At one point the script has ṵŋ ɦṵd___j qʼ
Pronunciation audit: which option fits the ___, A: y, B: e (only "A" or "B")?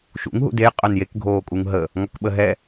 B